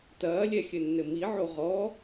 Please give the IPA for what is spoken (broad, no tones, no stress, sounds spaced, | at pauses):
t ɐː lʲ ɛ xʲ ɘ nː ɘ m i ʕ o ʁ ɔ